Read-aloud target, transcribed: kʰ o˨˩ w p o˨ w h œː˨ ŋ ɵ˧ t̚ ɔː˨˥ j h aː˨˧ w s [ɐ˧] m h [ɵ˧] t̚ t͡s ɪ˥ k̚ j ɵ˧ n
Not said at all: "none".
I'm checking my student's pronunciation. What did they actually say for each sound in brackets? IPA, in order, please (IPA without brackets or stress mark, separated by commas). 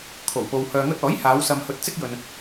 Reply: ɐ˧, ɵ˧